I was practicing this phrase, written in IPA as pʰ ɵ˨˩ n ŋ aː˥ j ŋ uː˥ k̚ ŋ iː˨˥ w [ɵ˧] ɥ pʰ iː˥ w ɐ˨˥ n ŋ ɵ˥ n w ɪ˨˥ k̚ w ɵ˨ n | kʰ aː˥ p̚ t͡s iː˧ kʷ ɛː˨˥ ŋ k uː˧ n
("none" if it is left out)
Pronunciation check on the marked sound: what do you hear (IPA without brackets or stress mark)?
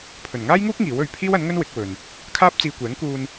ɵ˧